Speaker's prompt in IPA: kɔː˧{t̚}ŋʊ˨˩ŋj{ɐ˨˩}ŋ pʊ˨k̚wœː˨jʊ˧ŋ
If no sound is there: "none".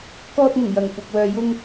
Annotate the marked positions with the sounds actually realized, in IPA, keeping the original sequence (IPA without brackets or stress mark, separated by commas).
t̚, ɐ˨˩